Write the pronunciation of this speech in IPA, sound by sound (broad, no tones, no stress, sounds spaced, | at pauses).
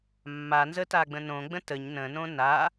mː a n z ə t a ɡ͡b ə̃ n õ ɡ͡b ə̃ t ə ɲ n ə̃ n õ n a